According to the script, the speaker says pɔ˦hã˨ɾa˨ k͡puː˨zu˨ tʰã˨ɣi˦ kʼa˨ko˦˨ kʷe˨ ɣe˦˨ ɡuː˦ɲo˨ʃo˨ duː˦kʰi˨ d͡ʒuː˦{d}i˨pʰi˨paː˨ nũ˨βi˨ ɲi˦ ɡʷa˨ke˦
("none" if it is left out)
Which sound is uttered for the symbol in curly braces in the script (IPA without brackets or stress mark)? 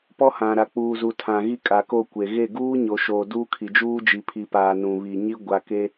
d͡ʒ